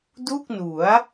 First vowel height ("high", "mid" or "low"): high